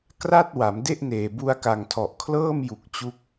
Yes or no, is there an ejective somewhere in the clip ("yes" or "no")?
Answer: no